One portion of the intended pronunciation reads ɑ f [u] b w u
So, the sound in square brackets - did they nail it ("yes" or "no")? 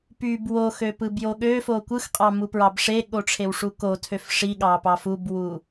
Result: yes